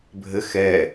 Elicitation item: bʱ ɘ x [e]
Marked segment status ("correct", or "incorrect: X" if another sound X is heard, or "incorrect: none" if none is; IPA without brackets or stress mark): incorrect: ɛ